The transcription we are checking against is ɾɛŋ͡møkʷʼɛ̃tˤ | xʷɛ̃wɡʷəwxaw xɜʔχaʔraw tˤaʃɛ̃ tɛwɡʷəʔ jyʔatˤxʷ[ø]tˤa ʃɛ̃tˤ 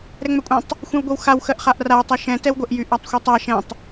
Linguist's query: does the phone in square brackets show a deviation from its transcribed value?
yes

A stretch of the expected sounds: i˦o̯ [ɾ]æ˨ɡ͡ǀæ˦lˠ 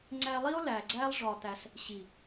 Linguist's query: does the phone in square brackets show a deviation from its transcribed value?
yes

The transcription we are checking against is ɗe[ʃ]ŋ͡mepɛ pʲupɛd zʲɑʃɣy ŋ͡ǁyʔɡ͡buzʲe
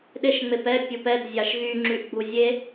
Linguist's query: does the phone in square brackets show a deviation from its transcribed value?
no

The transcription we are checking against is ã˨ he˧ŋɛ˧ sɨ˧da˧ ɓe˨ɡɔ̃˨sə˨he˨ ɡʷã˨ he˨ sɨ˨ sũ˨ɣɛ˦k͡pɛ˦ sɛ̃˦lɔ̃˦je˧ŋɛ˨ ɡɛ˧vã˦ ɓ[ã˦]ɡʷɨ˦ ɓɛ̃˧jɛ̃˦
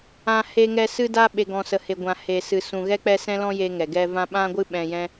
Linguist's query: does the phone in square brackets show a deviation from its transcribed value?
no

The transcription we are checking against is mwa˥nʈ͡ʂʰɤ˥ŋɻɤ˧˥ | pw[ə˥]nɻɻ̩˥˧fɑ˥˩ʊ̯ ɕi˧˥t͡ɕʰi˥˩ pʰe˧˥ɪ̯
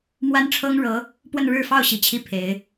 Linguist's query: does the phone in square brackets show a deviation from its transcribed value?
yes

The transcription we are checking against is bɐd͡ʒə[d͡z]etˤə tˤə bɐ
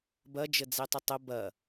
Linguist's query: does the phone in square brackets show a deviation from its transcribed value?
no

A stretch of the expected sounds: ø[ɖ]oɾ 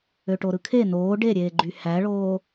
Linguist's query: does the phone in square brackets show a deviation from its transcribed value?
yes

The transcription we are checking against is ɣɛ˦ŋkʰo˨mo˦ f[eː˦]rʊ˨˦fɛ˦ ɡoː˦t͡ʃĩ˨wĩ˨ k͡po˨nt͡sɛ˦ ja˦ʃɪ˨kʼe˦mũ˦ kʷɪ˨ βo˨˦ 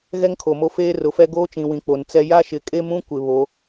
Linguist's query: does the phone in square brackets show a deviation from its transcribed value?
no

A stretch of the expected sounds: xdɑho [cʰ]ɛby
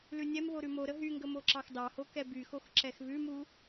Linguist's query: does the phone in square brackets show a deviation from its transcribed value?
yes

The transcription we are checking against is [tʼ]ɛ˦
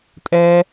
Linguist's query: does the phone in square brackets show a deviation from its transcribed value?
no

